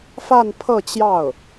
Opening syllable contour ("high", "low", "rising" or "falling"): falling